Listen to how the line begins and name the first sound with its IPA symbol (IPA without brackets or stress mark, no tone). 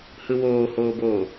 h